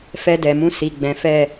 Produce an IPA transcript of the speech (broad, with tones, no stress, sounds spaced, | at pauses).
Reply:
f ɛ˧ d ɛ˨ m ũ˧ s i˨ ɡ͡b ɛ̃˨˦ f ɛ˦˨